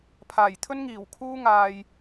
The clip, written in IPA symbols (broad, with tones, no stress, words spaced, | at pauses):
pʰaː˨˩jt̪ʰɵ˥nŋiː˨˩w kʰuː˥ŋaː˧j